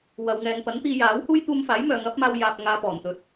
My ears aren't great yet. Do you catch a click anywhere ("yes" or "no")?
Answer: no